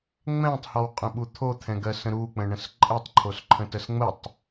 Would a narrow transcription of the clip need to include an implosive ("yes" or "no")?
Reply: yes